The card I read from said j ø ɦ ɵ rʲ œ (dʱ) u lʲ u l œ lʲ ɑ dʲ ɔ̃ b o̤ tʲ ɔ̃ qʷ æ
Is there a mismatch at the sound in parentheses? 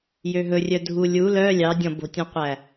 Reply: no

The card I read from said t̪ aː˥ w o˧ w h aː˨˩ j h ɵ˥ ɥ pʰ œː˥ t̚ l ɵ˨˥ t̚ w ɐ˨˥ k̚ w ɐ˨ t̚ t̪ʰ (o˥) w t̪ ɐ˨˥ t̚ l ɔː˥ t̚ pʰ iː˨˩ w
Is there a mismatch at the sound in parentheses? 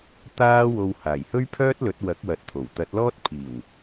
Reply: yes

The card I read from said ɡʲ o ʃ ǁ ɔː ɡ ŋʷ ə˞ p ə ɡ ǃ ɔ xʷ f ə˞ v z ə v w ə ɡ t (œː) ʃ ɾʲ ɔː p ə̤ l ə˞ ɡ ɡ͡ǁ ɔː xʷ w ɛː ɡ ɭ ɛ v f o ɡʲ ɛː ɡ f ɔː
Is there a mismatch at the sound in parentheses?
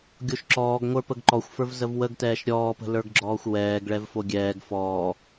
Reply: yes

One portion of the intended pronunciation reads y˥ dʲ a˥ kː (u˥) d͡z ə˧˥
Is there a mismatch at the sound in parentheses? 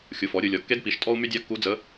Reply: yes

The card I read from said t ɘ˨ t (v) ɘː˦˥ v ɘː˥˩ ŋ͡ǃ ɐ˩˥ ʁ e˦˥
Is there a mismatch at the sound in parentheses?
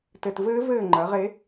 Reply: no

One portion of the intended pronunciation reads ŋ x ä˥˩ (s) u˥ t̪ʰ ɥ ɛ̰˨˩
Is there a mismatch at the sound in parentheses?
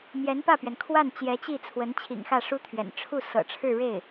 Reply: yes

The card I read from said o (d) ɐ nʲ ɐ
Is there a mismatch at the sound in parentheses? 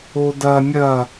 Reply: no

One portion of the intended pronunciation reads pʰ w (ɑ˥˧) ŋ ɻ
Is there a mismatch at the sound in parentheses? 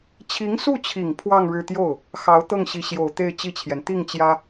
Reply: no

